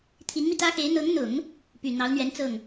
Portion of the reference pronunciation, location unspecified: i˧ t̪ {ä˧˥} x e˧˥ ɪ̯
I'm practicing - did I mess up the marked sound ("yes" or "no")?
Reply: yes